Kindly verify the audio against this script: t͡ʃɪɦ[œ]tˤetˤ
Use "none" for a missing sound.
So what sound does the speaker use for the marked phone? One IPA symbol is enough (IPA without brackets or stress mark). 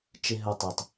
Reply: œ